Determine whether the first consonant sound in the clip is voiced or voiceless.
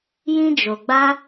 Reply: voiced